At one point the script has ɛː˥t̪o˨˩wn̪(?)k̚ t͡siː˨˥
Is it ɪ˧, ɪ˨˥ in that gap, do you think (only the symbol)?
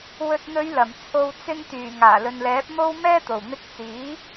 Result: ɪ˧